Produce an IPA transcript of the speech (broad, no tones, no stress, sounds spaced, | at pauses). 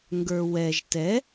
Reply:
ŋ ɡ ə˞ w ɛ ʒ t ɛ